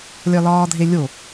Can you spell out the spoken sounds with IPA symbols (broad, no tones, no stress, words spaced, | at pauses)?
lʲɒlɒːdʱelʲo